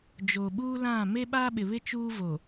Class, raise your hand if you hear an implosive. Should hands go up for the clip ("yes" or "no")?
yes